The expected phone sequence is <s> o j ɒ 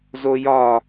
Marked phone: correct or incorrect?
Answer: incorrect: z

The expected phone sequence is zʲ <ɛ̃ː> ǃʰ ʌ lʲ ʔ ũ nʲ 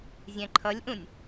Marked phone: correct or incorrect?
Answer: incorrect: ɛ̃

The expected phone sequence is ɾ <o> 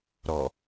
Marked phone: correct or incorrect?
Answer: incorrect: ɔ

